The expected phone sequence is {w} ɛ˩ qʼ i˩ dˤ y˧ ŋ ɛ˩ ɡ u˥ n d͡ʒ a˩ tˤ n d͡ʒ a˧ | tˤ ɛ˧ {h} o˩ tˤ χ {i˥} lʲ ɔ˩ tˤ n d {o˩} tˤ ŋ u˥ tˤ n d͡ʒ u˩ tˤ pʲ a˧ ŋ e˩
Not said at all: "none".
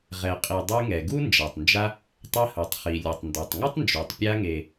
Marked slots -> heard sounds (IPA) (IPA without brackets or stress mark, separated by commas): ʁ, h, i˩, ɔ˩